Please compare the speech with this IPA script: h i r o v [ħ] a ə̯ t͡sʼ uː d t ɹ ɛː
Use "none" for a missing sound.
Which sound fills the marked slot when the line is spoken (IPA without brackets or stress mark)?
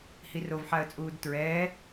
ħ